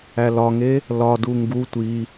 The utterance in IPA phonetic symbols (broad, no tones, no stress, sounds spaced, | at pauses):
æ l ɒ ŋ e | l ɒ d u ŋ ɡ u tʷ i